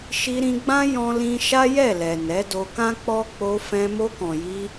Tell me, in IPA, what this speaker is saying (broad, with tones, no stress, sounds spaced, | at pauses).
ʃ i˧ ɾ ĩ˧ ɡ͡b ã˦ j ɔ̃˦ l ĩ˦ ʃ a˦ j ɛ˦˨ l ɛ˨ n ɛ˨˦ d o˧ k ã˦ k͡p ɔ˦ k͡p o˧ f ɛ̃˧ m o˧ k ɔ̃˨ j i˧